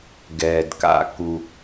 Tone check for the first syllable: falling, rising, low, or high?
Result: low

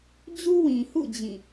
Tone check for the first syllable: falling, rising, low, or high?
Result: high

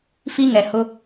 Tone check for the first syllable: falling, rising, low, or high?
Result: high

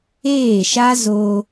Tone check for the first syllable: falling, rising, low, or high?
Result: falling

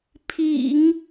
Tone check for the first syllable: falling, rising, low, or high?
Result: low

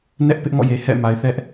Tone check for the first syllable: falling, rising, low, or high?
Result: high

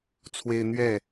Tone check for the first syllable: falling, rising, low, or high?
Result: high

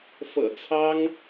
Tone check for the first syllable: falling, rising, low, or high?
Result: low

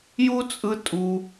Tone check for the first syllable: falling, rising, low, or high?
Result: high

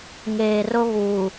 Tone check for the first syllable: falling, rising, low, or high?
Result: low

